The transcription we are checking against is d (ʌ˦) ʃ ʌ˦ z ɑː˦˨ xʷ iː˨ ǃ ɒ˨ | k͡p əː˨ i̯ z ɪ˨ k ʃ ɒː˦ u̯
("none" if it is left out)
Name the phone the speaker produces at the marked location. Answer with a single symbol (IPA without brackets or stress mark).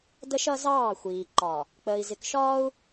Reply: ə˦